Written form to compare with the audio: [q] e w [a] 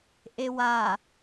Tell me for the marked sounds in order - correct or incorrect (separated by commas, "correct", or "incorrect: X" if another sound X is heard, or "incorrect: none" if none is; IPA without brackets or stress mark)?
incorrect: ʔ, correct